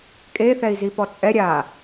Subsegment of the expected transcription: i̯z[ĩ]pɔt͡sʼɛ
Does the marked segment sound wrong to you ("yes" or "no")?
yes